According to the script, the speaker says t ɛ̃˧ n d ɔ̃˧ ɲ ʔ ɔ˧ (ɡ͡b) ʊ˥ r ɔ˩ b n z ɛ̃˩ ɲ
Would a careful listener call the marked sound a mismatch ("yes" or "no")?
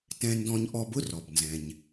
yes